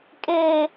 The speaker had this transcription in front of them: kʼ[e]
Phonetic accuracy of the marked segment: correct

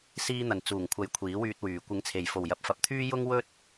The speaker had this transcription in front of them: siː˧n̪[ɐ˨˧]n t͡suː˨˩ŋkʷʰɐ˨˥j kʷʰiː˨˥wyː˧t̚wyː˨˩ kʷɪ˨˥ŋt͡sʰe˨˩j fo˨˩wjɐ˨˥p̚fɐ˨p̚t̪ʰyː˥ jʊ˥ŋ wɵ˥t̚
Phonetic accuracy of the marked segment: incorrect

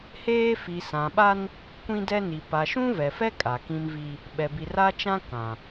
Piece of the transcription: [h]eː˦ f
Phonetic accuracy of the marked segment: correct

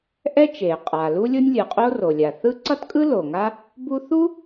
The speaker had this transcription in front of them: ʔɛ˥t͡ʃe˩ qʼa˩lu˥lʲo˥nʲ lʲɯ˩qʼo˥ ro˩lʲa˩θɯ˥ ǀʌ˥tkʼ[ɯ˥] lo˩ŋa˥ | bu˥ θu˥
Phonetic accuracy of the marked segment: correct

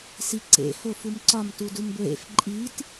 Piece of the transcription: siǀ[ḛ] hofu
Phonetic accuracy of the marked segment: correct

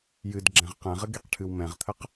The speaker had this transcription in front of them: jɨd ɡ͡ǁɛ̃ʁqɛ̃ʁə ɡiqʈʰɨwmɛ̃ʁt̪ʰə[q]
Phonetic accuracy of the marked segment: correct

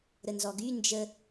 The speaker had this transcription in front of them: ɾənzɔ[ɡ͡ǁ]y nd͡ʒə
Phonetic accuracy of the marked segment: incorrect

